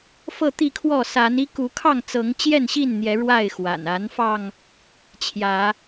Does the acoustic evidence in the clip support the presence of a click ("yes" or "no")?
no